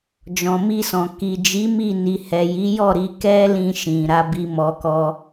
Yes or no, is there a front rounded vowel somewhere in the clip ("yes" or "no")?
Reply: no